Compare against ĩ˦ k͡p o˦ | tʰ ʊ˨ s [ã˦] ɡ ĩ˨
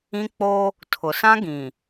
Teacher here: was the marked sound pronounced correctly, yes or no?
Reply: yes